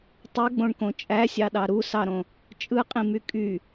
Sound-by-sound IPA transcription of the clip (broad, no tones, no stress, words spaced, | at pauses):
tˤɯɡ͡bõɳkõ t͡ʃʼæsʲɑɗɑ ɾusɑɾõ | t͡ʃʼɯqʼĩmy kʼy